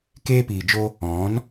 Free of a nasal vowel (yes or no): no